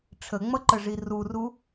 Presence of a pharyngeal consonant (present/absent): absent